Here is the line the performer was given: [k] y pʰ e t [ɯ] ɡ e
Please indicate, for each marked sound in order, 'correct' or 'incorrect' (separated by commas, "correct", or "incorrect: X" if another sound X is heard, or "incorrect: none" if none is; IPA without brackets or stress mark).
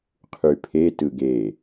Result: incorrect: qʰ, correct